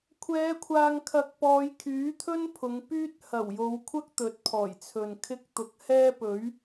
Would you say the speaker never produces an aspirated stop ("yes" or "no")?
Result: no